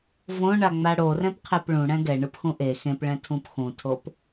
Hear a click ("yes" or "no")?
no